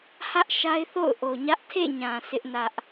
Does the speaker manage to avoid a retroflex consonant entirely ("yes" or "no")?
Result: yes